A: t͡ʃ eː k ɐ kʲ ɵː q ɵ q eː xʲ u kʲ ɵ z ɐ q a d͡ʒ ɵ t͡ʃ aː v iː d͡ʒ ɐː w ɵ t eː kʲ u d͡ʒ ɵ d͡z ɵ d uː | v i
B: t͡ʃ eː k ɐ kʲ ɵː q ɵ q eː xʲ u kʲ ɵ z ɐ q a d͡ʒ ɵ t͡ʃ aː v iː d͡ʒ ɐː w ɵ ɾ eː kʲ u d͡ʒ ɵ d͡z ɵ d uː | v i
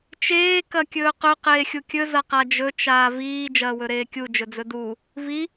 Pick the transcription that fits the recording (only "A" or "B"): B